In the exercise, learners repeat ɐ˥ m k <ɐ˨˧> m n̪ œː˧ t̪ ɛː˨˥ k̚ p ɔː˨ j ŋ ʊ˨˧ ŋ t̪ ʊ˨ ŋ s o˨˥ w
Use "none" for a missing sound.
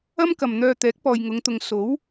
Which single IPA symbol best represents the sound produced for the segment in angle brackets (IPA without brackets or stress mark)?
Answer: ɐ˨